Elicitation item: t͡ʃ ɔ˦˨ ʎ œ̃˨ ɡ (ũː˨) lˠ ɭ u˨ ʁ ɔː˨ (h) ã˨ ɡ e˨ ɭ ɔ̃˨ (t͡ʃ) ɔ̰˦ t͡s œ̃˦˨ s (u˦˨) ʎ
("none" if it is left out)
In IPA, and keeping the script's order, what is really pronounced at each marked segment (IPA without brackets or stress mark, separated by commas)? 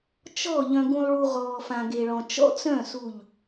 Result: ũ˨, f, t͡ʃ, u˦˨